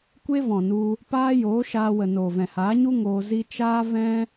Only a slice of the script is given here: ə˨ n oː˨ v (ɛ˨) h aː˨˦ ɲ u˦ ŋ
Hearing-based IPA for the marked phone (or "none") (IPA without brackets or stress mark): ɛ̃˨